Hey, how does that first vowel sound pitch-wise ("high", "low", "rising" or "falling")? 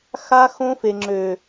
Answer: high